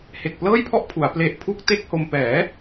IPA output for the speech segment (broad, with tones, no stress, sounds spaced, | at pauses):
h e˨˩ k̚ p l ɤː˥˩ j pʰ ɔ˥˩ ʔ pʰ u˩˦ a̯ p l e˦˥ ʔ pʰ u˥˩ k̚ t e˥˩ k̚ h o˧ m p ɛː˩˦